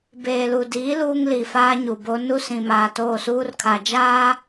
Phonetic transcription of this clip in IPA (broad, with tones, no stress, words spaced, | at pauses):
beː˨lu˨diː˨˦ luː˦ŋli˨faː˦ ɲu˨bo˦ nu˦sĩ˨ maː˨toː˦˨suː˦rkʰa˨ d͡ʒaː˦